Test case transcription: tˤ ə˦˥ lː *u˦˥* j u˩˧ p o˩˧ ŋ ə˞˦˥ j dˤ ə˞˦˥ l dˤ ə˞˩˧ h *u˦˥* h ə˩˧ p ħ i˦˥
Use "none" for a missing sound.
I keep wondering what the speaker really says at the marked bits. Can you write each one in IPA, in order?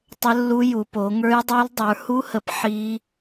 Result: u˦˥, u˦˥

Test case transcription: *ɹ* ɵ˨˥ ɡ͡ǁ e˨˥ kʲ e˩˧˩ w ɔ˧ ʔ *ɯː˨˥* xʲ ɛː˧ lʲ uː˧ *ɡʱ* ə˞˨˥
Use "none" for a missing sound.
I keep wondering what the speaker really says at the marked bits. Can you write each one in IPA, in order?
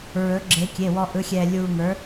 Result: ɹ, ɯ˨˥, ŋ

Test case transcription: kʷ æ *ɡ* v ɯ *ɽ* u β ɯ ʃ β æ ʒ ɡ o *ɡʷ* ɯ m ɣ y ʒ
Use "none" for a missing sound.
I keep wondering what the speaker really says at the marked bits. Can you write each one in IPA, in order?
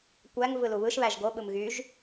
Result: ŋ, l, ɓ

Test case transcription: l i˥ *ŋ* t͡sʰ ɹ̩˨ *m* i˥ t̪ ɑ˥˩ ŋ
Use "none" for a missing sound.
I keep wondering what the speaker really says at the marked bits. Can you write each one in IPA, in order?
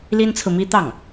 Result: n, m

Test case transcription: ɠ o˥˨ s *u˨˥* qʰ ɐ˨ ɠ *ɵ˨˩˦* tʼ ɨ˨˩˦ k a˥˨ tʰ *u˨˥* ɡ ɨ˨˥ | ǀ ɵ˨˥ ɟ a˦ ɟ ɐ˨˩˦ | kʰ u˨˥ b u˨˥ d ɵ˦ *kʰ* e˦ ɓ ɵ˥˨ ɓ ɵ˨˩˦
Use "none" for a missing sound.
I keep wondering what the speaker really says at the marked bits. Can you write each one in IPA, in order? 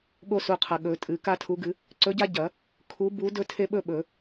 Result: u˨, ɵ˨˩˦, u˨˥, tʰ

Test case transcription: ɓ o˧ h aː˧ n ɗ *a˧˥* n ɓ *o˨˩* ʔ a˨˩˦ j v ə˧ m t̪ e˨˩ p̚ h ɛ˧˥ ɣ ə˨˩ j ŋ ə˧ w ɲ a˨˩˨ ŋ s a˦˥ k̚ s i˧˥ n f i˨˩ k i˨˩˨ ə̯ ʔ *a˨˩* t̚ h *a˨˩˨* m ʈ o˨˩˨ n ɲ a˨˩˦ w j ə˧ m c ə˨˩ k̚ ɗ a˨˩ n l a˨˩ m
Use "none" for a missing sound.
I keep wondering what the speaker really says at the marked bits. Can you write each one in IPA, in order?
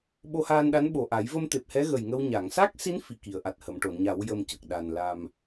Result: a˧˥, o˨˩, a˨˩, ə˨˩˨

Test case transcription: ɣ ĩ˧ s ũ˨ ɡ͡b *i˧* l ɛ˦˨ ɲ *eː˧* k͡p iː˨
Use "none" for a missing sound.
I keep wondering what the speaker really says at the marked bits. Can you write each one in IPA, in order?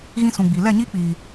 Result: i˨, iː˧

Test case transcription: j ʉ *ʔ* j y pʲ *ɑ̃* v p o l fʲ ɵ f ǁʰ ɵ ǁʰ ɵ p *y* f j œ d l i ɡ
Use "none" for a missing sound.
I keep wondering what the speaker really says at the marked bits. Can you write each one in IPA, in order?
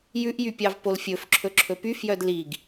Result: ʔ, ɑ, y

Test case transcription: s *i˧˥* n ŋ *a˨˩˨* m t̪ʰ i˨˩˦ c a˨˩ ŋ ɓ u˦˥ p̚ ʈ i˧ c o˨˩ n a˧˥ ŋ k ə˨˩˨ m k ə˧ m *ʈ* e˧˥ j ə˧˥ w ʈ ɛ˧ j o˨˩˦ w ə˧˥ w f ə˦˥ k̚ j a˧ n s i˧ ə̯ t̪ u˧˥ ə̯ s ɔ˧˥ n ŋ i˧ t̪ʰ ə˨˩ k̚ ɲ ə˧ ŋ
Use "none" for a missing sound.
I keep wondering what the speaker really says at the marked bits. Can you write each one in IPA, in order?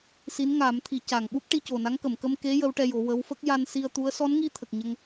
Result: i˧˥, a˨˩˦, k

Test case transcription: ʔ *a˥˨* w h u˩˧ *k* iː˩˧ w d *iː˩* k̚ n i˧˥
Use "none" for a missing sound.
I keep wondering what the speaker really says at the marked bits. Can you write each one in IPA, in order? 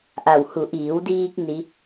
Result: a˧˩, ʔ, iː˧

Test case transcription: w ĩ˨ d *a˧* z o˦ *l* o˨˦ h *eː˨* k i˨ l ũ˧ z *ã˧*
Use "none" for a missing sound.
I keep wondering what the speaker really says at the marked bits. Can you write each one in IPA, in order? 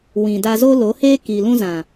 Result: a˧, l, eː˦, ã˨

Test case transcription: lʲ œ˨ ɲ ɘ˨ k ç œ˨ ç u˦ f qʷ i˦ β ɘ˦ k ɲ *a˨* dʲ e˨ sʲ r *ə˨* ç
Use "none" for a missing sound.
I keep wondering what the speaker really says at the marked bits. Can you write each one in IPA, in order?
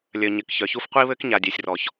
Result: a˨, ɔ˨

